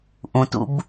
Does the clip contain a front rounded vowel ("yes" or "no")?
no